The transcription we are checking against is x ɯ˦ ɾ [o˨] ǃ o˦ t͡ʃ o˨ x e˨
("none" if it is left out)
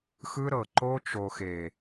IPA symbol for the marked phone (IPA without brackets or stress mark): ɤ˨